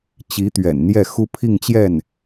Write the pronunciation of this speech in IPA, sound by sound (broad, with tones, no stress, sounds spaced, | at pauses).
t͡ɕ i˧˥ t̪ ɥ ɛ̰˨˩ n n̪ j ɛ˥˩ x u˥ pʰ i˥˧ ŋ t͡ɕ j ɛ˥˩ n